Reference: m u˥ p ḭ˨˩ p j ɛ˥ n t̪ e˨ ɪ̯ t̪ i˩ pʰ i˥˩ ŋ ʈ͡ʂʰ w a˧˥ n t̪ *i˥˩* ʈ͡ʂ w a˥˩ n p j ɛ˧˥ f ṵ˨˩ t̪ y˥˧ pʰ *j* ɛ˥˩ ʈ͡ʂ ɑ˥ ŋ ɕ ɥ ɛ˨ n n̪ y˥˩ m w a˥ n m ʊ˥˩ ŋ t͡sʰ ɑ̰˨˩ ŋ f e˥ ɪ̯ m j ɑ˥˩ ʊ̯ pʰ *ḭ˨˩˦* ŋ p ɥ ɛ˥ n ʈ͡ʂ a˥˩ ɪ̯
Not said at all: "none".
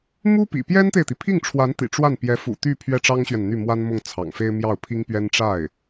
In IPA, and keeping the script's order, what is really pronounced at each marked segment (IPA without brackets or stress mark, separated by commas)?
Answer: ḭ˨˩, ɥ, i˥